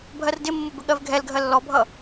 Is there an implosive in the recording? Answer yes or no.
yes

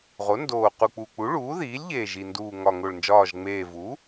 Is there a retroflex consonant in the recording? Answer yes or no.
yes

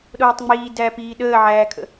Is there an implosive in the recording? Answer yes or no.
yes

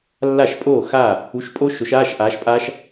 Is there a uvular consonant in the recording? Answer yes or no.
no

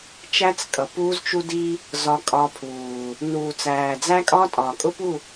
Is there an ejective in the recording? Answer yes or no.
yes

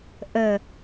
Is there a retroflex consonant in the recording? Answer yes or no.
no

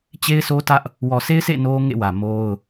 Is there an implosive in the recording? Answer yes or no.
no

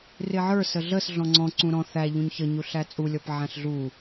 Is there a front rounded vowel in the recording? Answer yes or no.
no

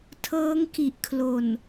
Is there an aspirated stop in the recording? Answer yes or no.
yes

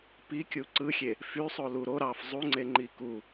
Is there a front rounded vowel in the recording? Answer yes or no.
yes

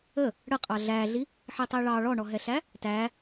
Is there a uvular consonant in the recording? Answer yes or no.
yes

